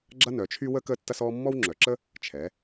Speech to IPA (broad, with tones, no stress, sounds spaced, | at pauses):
ɡ͡ǁ ɐ˦ n œ˩˧ t͡ʃʰ y˦ w ə˦ k əː˦ tː ɐ˦ s ɔː˦ mː ɔ˦ w ŋ͡ǁ œ˩˧ ǁ ə˦ | t͡ʃʰ ɛ˩˧